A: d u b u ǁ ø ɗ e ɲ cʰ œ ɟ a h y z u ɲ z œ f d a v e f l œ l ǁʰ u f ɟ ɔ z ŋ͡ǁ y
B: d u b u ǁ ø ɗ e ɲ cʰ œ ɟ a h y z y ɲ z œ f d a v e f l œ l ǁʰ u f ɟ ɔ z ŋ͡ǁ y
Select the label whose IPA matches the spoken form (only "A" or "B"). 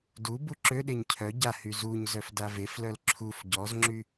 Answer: A